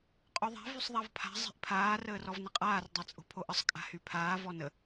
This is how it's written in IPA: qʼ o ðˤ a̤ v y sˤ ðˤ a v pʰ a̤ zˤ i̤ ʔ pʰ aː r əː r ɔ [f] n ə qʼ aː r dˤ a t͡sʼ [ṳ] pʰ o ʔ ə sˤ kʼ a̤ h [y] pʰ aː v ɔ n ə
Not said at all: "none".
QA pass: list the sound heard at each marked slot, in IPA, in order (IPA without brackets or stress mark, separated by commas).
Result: v, o̤, y